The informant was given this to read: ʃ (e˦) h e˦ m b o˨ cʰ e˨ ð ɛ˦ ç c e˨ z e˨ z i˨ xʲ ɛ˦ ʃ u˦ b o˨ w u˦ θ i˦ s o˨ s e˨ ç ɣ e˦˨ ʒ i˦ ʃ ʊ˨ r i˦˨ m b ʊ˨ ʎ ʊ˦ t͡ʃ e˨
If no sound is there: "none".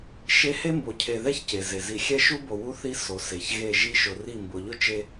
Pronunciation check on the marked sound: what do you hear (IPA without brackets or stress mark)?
e˦